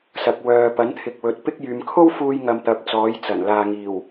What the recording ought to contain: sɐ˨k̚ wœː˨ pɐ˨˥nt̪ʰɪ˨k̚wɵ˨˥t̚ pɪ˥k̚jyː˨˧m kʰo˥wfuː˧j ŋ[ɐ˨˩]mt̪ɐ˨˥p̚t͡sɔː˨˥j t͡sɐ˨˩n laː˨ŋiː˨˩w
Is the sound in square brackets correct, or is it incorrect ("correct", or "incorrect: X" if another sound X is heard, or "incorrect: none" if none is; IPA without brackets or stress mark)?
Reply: incorrect: ɐ˧